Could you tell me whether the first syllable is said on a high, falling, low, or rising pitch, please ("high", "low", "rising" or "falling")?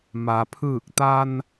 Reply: low